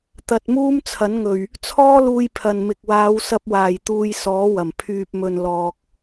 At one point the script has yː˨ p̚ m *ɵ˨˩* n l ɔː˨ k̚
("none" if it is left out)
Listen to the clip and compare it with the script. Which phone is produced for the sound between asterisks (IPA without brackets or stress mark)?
ɵ˨